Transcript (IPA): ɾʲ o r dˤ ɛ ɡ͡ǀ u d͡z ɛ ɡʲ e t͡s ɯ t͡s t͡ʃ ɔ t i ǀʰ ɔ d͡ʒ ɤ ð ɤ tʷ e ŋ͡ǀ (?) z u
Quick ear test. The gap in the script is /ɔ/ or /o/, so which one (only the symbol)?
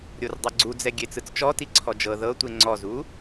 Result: ɔ